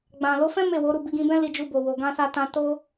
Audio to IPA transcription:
ɡ͡b ã˨ l o˨˦ f ɛ̃˦ m e˦˨ w o˨˦ ɾ u˦˨ b i˧ ɡ ĩ˧ b ɛ̃˦ l i˧ d͡ʒ u˧ b o˨ w o˨ ɡ ã˧ s a˧ t ã˧ t o˦

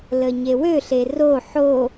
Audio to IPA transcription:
l ə ɲ e w ø ɬ e r o ħ o

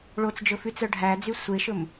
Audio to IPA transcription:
ɭ o t͡s d͡ʒ ɵ f y t͡s œ ɖʱ æ d͡z y sʷ e ʃ ɵ m

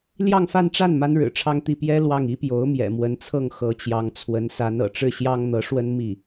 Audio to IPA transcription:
l j ɑ˥˧ ŋ f a˥˧ n ʈ͡ʂ a˥˩ n m a˥ n ɻ ɻ̩˨˩ ʈ͡ʂʰ ɑ˥˧ ŋ t̪ i˥˩ p j ɛ˥ l w ɑ˥˩ ŋ i˥ p j o˧˥ ʊ̯ m j ɛ̰˨˩ m w ə˧˥ n t͡sʰ ɤ˥˩ ŋ x ɤ˧˥ t͡ɕ j ɑ˧˥ ŋ t͡sʰ w ə˧˥ n s a˧˥ n ɤ̰˨˩ ʈ͡ʂ ɻ̩˥˩ ɕ j ɑ˥ ŋ n̪ ɤ˧˥ ʂ w ə˥ n m i˥˩

